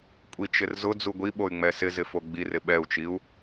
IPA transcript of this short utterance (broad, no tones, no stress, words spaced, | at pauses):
kʷʼit͡ʃɪrzʊ d͡zuɡʷi ɓoy̯ŋ͡mɛsɪ zɪfoɡ͡bir ɪɓɛu̯t͡ʃiu̯